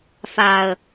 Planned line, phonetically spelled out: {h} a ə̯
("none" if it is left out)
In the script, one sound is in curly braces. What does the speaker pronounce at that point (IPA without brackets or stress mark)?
f